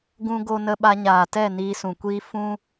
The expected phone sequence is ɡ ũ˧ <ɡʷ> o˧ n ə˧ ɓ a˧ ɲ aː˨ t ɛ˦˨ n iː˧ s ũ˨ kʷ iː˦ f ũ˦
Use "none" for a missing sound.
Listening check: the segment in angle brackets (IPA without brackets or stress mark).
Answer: ɡ